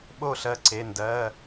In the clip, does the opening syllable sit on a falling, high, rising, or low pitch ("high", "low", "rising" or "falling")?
falling